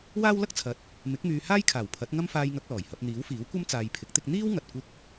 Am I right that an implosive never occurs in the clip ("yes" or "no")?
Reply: yes